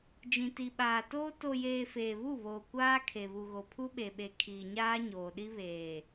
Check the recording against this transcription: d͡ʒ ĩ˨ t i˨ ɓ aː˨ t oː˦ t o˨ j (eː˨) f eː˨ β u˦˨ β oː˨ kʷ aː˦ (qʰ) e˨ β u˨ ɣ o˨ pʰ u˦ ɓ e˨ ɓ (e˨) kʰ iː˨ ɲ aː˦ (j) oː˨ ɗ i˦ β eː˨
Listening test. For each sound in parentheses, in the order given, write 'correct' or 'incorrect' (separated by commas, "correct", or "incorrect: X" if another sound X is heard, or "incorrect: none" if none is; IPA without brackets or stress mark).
correct, incorrect: kʰ, correct, incorrect: ɲ